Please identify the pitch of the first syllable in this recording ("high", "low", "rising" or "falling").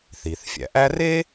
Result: low